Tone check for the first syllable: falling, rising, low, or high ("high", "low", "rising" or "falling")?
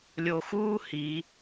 low